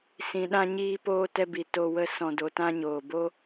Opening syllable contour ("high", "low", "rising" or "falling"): low